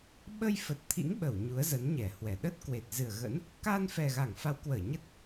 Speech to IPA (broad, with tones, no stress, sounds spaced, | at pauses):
ɓ ə˧ j f ə˨˩ t̚ t̪ʰ ḭ˧˥ ŋ ɓ ə˧˩ w ɲ u˨˦ ə̯ z ə˨˦ n ɲ ɛ˧˩ h w ɛ˨˩ ɗ ə˦˥ t̚ k w e˨˩ t̚ z ɨ˨˩ ə̯ ɣ ə̰˧˥ n | k a˧ n f ɛ˨˩ ɣ a˧˩ ŋ f a˨˦ w k w əː˧˩ ɲ ə˦˥ t̚